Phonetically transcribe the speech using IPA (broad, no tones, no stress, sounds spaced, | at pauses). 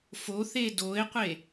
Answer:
f o θ e d o e̯ qʷ e